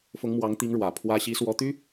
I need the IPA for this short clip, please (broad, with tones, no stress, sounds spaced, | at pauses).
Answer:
f ʊ˧˥ ŋ m w ɑ˧˥ ŋ t̪ i˧˥ ŋ ɻ w ä˨˩ pʰ w ä˥ ɕ i˧˥ s w ɔ˧˥ t̪ y˥